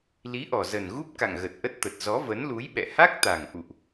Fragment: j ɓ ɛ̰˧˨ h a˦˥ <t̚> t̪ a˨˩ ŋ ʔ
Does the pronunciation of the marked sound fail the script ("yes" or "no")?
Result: yes